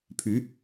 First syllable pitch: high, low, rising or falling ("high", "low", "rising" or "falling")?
rising